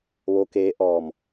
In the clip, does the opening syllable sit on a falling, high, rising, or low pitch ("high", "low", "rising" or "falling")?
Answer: rising